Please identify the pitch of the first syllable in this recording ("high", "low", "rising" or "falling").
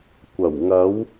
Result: low